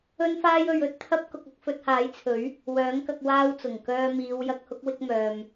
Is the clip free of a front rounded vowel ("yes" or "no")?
no